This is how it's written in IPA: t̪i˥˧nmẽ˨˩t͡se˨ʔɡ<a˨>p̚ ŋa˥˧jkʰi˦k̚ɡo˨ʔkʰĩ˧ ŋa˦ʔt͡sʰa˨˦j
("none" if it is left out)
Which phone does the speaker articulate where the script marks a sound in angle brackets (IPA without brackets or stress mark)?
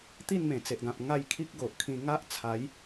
ã˨